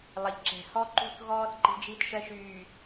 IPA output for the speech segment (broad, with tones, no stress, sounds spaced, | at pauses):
lˠ ə˨ ʎ ǁ ɛ̤˨ h ɔ˦ ǃ ṳ˦ θ ɣ ɔː˦ θ ǃ i̤˦ d͡ʒ i˦ t ʃ ɜ˦ ʃ yː˨